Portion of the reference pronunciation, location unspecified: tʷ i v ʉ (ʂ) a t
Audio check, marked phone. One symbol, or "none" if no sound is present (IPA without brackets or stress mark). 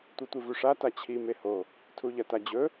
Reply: ʂ